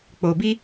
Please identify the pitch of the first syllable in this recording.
low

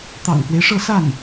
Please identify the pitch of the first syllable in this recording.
low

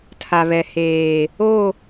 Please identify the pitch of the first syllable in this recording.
low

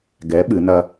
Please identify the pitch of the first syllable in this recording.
rising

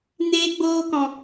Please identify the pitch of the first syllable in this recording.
high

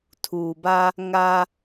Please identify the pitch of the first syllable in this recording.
low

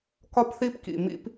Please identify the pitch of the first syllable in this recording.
high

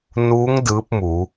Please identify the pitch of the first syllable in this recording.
rising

